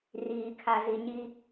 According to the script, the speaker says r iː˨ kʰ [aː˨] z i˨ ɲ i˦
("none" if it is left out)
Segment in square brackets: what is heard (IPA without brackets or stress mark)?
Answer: a˨